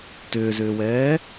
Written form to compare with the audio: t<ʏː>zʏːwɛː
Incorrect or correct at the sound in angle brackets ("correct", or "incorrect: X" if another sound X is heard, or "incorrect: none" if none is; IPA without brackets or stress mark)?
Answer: correct